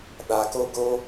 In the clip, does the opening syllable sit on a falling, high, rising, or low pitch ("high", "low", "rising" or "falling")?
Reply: low